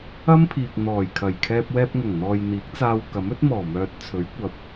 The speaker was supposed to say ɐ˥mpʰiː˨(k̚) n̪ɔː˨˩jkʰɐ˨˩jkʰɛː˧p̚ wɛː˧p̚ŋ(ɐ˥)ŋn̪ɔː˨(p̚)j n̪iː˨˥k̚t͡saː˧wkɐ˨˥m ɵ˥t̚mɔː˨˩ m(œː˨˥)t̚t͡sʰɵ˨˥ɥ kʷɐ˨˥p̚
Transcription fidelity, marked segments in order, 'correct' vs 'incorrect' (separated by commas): correct, incorrect, incorrect, incorrect